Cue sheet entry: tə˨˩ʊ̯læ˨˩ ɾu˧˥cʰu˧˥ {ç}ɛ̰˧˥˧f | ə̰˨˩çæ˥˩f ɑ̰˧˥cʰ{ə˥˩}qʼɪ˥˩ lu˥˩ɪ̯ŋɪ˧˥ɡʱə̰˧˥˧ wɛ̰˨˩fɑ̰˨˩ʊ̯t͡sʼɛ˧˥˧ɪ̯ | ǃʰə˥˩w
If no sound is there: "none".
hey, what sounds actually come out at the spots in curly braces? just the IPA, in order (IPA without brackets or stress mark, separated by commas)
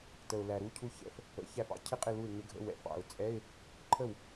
ç, ɪ˥˩